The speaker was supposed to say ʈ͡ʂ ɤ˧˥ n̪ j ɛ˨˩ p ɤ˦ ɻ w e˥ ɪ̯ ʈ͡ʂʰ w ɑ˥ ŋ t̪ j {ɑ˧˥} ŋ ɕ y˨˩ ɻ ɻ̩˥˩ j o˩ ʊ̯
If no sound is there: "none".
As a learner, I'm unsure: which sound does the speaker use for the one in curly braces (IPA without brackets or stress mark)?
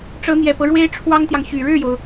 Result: ɑ˨